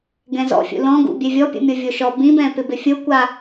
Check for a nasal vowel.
present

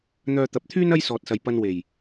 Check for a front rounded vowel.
present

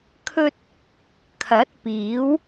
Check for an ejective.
absent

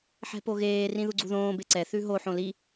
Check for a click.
present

